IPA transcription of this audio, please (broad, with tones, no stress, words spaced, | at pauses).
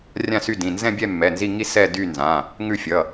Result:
rʲã˦˨sy˦˨dĩ˩˧˩ nzɛ̃˦˨bʲɛ˦˨ mːɛ˩˧˩nzi˦˨ ŋi˦˨ sɛ˦˨dy˦˨nzã˩˧˩ | ŋʉ˦˨fʲʌ˩˧˩